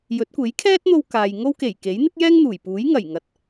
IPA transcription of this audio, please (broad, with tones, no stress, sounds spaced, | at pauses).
j ɵ˨˥ t̚ kʷ e˨˥ j kʰ ɛː˥ t̚ n̪ o˧ w k aː˨ j ŋ o˥ w k e˨˩ j k e˨˥ j n̪ ɪ˥ k̚ j ɛː˥ ŋ n̪ uː˨˩ j p uː˨˥ j ŋ ɐ˨˩ j ŋ ɐ˨ t̚